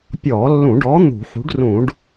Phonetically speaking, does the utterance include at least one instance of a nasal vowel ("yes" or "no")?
yes